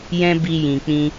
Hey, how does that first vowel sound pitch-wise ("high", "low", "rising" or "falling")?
high